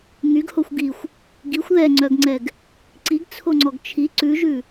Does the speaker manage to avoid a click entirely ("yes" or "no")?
no